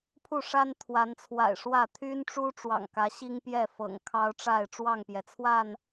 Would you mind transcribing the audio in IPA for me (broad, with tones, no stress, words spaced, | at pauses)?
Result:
pʰu˥˨ʂa˦n t̪ʰwa˨˦nt͡sʰwa̰˨˩ɪ̯ʂwä˥˨ t̪ʰy˦nʈ͡ʂu˦ ʈ͡ʂwɑ̰˨˩ŋkä˨˦ ɕi˦ŋpjɛ˥˨ fɤ̰˨˩ŋkʰɑ˦ʊ̯ʈ͡ʂa˥˨ɪ̯ ʈ͡ʂwɑ˥˨ŋpjɛ˩t͡sʰwa˥˨n